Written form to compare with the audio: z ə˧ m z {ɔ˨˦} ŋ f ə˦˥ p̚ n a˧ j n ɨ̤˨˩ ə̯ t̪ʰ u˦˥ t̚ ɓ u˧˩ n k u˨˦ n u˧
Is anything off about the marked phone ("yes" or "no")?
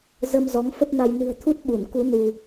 no